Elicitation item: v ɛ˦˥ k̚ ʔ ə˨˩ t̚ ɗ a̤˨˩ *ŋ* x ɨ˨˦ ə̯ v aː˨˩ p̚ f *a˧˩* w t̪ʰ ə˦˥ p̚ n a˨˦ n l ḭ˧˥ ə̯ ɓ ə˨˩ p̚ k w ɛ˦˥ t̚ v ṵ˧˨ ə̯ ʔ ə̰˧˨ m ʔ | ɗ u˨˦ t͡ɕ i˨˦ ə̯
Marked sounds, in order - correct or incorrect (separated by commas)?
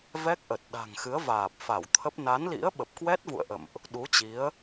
correct, correct